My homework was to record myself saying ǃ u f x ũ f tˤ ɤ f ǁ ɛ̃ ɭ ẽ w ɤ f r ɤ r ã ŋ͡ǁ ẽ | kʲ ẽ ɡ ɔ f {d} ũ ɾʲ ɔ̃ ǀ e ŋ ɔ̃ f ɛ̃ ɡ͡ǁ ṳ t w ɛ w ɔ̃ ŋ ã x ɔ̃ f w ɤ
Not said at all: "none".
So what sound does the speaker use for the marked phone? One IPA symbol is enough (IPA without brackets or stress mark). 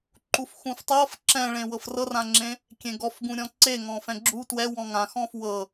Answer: ɡ